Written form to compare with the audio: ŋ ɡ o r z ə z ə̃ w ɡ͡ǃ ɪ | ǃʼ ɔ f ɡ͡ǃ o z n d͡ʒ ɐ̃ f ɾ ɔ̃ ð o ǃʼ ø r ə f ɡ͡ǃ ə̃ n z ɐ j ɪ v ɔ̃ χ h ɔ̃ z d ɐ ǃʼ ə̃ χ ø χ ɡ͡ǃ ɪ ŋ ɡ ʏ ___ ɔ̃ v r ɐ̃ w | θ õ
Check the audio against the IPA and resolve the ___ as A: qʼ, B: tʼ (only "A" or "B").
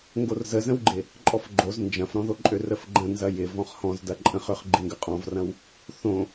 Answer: A